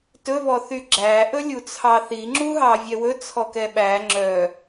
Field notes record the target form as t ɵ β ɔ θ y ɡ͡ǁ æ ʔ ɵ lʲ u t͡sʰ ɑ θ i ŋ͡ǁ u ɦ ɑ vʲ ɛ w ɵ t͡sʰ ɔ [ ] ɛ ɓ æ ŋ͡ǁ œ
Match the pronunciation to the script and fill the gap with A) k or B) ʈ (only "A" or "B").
A